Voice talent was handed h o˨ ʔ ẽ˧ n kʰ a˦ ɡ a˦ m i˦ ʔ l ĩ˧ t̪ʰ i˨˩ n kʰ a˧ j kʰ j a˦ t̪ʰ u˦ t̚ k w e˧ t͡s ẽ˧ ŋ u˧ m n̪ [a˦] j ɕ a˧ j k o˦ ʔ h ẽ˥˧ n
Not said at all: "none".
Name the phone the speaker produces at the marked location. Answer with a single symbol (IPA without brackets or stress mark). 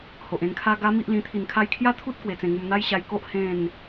a˦